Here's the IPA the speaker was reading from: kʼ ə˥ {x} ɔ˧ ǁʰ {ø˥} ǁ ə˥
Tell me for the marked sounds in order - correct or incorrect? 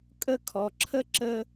incorrect, incorrect

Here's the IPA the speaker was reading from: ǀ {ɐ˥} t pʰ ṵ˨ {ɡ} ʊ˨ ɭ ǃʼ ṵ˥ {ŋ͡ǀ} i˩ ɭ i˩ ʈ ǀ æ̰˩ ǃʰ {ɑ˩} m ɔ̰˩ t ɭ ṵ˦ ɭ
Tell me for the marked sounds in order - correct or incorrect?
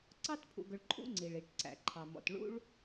incorrect, correct, correct, correct

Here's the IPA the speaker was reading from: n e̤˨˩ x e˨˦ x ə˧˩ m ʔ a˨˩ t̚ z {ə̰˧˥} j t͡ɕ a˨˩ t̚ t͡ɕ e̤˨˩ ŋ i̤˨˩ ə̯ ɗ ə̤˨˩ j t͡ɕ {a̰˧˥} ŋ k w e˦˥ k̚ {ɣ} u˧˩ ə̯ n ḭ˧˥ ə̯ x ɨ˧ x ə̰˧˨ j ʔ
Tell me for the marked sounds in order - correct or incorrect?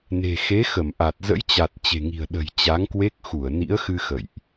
correct, incorrect, incorrect

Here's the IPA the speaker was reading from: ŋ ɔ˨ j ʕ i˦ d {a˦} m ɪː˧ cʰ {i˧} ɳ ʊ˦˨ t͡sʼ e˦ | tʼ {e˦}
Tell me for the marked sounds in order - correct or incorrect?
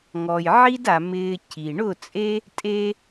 incorrect, incorrect, correct

